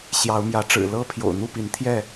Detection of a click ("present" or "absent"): absent